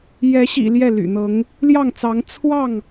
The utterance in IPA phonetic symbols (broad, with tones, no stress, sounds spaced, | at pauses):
j ɛ˨˦ ɕ ḭ˨˩ l j ɛ˥˨ l y̰˨˩ n̪ ɤ˨˦ ŋ | l j ɑ˥˨ ŋ t͡s ɑ˨˦ ŋ t͡sʰ w ɑ˥˨ ŋ